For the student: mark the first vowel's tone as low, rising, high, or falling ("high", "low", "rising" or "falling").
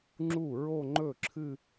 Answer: falling